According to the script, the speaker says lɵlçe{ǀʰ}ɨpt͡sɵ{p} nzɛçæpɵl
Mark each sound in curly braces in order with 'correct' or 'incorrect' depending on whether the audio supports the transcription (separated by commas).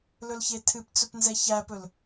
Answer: incorrect, correct